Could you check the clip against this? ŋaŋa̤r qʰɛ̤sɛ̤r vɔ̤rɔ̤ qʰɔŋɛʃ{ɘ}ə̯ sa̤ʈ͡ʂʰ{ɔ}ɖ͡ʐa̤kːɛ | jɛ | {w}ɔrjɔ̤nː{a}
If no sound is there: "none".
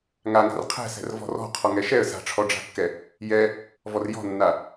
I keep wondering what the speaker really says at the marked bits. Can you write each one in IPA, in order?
ɛ, ɔ, v, a

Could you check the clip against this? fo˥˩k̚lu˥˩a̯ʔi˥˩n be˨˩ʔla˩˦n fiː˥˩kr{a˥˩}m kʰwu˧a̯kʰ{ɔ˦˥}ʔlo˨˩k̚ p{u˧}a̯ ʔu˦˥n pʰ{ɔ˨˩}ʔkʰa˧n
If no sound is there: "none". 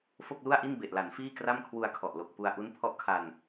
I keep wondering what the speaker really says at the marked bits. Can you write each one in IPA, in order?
a˥˩, ɔ˨˩, u˧, ɔ˥˩

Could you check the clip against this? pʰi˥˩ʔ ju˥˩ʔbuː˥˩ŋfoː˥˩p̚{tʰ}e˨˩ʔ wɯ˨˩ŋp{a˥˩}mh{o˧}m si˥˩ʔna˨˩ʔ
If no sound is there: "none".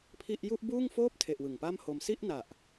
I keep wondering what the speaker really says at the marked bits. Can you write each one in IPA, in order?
tʰ, a˥˩, o˧

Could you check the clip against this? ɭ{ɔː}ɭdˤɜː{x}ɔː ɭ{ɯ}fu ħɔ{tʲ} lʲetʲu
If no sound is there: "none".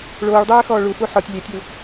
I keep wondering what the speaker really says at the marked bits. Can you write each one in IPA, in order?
oː, x, u, tʲ

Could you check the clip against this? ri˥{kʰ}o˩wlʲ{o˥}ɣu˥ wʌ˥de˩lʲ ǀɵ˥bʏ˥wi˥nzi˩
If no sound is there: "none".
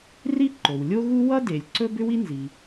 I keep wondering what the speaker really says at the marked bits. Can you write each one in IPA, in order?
ǃ, o˥

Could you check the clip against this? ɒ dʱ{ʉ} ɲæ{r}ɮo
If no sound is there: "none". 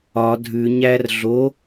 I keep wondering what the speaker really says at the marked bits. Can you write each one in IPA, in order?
ʉ, r

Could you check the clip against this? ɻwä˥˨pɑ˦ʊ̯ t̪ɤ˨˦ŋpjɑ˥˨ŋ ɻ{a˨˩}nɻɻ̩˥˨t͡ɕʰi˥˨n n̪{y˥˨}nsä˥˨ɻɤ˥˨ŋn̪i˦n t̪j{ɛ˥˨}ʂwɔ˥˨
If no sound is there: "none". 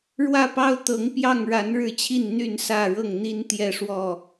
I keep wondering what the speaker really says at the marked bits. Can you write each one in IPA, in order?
a˨˦, y˥˨, ɛ˥˨

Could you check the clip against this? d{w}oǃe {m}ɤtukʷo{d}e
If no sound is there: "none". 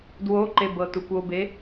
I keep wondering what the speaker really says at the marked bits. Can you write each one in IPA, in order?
w, b, b

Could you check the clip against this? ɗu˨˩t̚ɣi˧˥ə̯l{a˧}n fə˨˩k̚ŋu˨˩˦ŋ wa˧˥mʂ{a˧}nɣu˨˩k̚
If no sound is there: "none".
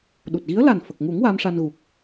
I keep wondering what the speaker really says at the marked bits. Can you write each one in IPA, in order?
a˨˩, a˧

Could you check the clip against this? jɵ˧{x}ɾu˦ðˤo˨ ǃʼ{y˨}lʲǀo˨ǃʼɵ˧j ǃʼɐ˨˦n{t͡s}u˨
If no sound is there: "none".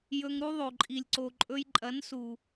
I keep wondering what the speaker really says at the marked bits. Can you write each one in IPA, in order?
ŋ, i˨, s

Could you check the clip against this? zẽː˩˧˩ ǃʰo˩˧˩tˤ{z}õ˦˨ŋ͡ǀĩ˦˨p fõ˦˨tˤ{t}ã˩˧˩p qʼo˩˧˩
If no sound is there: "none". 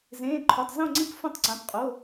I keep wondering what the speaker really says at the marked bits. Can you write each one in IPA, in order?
z, ǀ

